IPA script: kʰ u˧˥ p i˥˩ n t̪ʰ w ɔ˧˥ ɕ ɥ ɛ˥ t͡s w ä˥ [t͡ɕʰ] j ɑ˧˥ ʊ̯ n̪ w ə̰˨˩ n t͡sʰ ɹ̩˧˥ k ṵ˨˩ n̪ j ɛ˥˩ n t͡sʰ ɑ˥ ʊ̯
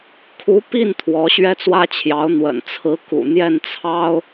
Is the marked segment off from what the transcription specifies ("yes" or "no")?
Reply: no